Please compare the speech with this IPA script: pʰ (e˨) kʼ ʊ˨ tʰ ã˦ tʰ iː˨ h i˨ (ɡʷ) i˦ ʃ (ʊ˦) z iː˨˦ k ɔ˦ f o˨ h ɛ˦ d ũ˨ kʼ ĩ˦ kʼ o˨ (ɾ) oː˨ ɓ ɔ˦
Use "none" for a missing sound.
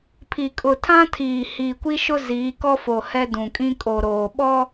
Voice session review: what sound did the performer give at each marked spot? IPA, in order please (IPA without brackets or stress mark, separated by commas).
i˨, kʷ, ʊ˦, ɾ